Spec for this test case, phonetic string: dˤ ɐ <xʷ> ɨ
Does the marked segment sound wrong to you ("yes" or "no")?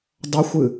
no